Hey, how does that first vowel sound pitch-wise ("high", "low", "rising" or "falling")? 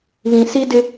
low